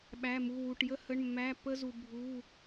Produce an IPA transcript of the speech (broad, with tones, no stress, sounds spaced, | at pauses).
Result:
ɓ æ˧˥˧ m u˧˥˧ w u˧˥˧ ʈ j ə˥ h ə˧˥˧ ɳ mː æ˧˥˧ p ə˥ z u˧ bʱ u˧˥˧